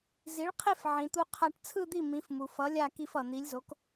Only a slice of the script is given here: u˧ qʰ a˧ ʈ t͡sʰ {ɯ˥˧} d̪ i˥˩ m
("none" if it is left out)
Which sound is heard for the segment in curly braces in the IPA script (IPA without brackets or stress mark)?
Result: ɯ˥˧